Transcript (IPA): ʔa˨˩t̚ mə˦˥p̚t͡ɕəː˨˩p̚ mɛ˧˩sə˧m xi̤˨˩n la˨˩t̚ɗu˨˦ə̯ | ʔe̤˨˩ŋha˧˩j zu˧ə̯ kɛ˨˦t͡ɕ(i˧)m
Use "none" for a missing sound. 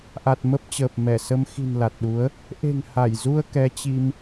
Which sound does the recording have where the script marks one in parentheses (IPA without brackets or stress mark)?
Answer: i˧